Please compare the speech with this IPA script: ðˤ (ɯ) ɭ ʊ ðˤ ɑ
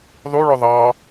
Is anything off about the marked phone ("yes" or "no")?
yes